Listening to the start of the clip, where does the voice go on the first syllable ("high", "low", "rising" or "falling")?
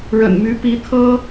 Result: low